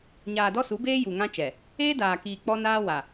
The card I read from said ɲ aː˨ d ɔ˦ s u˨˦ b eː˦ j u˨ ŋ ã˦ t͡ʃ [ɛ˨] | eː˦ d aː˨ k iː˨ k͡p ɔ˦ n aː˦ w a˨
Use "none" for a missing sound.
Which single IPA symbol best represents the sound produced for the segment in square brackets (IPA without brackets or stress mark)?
ɛ˨